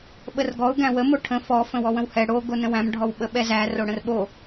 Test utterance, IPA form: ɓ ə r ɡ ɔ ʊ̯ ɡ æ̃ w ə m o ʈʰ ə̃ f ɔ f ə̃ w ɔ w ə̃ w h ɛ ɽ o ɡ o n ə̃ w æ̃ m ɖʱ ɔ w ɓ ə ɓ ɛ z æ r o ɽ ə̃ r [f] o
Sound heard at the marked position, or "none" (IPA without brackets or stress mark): ɓ